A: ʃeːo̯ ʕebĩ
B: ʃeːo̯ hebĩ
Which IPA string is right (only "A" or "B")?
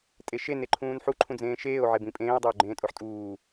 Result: A